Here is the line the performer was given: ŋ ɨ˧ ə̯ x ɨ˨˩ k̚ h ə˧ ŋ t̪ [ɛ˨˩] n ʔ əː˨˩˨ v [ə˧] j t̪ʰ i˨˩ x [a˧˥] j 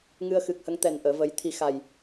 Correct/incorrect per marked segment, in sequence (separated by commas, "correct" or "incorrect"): correct, incorrect, incorrect